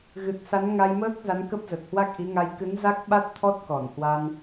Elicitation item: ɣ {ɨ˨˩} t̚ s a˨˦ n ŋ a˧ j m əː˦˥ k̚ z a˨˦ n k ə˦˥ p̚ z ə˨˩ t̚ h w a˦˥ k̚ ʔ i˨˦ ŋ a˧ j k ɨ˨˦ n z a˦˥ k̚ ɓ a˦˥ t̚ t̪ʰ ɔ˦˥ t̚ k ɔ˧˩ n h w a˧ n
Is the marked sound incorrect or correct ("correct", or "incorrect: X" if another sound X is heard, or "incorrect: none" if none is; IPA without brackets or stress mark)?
correct